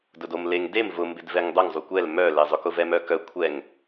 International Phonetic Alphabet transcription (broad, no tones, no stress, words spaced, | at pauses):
dʊdomleŋ dem vʊ mbɪdvɛŋdˤʊŋ zˤukʷɛl mœ lezˤʊkʊvɛ mœkœ kʷʰɛŋ